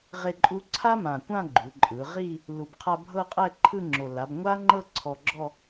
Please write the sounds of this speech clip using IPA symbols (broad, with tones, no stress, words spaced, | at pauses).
ʁe˥˧ǃʼu˥ ǀʰa˥mã˨˩kʷã˥˧ ɡ͡ǃu˩˧ ǃʼɯ˩˧ʁi˥˧ | lu˨˩bqʰa˧ bʱɤ˥˧qʼɛ˥˧ǃʰɯ˥˧ŋ͡ǁo˨˩ la˩˧bŋʷa˥ŋ͡ǃɤ˥˧ ǀʰɔ˧ɡ͡ǁɔ˥˧